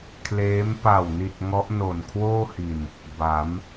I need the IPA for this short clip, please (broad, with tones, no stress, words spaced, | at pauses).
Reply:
kʰleː˦˥m pa˨˩wni˨˩t̚ ŋɔ˦˥ʔno˨˩nkʰwoː˥˩hi˨˩n | ba˩˦m